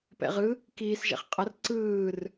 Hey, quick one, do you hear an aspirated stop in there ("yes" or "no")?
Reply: no